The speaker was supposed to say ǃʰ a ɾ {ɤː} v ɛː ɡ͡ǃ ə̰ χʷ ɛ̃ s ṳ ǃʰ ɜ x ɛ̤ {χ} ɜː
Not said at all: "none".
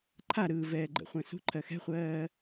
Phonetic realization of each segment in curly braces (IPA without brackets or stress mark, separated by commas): ɯː, χʷ